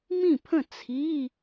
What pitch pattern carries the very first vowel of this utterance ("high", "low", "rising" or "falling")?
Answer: falling